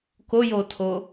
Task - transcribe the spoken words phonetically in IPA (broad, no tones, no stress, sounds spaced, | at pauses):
k o j o tʰ o